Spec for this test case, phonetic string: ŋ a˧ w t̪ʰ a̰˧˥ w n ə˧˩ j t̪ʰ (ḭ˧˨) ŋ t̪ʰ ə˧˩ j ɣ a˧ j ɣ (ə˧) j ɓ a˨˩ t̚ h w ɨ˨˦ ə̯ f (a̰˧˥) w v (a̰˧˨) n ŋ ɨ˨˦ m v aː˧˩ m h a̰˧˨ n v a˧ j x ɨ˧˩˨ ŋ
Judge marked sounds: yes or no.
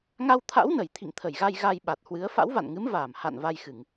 yes, no, yes, yes

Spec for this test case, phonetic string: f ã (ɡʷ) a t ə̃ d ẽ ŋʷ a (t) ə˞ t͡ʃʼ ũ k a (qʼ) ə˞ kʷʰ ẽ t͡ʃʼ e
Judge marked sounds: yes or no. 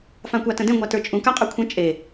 no, yes, yes

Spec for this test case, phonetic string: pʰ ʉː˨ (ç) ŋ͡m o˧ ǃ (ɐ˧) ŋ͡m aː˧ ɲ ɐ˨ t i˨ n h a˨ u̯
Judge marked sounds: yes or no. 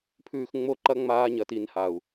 no, yes

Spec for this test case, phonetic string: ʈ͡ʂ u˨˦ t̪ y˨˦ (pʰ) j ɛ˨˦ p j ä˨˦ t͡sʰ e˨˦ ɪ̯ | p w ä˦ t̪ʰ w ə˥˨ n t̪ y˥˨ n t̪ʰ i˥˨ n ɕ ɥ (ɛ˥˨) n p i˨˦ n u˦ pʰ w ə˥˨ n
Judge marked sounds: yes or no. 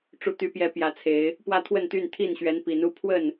no, no

